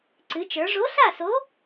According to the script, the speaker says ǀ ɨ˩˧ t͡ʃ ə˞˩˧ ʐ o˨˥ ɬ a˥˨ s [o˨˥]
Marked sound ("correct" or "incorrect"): correct